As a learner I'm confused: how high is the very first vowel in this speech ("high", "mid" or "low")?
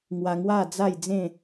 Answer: low